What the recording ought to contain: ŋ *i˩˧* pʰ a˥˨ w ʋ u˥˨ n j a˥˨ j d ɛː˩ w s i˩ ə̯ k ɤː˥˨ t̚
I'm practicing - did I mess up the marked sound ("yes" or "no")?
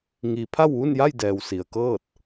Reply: no